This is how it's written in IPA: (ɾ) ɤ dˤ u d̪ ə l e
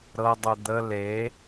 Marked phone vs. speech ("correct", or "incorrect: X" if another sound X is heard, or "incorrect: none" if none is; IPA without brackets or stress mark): correct